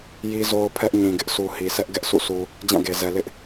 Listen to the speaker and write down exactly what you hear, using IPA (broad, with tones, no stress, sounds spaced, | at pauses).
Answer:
j i˦ z o˦ ʊ̯ pʰ ɛ˦ ʔ ɲ ĩ˨ ɡ ɪ˦ ʔ s u˨ h i˨ s ɛ˦ ʔ ɡ ɛ˦ ʔ s ṵ˦˨ s u˨ | d͡ʑ ã˦˨ ɡ e˨ z ɛ˨ l ɪ˦ ʔ